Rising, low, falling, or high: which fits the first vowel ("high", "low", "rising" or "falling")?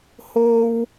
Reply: high